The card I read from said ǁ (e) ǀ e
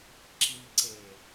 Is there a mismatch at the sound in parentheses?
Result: yes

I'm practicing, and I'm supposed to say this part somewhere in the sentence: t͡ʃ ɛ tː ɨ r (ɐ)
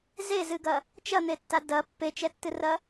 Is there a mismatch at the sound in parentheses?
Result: no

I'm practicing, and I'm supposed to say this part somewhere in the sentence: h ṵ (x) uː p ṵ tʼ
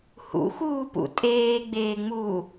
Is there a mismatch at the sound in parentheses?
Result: no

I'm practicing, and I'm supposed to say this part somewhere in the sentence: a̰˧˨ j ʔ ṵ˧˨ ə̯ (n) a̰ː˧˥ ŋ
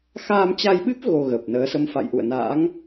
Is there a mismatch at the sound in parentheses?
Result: no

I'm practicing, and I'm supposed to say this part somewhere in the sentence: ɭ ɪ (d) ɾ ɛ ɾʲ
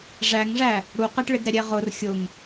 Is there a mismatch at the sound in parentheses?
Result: no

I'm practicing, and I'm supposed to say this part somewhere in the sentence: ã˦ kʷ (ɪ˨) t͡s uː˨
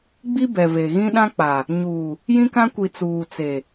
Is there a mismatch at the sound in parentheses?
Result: yes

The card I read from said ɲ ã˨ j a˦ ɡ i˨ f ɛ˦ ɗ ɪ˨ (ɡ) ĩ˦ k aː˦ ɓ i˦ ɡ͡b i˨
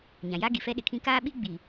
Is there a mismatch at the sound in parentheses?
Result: yes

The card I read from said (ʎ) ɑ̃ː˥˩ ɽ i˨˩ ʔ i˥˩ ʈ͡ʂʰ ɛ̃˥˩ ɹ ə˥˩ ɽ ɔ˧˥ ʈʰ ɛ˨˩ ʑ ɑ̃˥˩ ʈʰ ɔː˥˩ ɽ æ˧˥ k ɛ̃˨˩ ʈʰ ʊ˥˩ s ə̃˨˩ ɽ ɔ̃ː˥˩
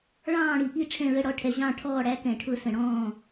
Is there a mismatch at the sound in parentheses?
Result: yes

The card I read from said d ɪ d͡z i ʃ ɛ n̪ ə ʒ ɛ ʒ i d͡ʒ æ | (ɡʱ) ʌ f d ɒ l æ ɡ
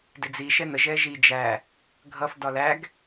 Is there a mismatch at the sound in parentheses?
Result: no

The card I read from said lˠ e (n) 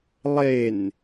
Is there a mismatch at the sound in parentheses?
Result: no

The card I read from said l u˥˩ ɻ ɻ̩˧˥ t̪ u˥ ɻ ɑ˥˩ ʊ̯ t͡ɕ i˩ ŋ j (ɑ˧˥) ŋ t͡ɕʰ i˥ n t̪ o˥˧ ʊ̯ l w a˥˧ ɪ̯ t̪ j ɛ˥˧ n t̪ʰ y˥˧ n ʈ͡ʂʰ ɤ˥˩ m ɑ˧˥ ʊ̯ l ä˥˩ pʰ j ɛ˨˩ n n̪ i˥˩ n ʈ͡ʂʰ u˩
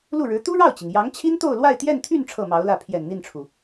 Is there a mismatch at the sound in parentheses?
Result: no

